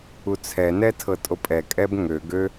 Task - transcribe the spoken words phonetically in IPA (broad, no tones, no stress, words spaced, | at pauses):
ut͡sʰɛnɛ tʰɤtʼopʼɛkʼɛb ŋø ɡø